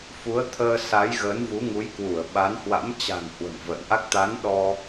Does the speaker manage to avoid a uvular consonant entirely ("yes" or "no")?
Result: yes